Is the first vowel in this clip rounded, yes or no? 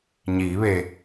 no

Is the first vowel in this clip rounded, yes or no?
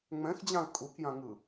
no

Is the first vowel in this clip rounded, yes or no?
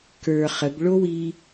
no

